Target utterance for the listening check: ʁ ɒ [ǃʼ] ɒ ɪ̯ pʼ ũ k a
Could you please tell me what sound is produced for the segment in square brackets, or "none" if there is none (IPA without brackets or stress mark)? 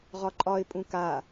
ǃʼ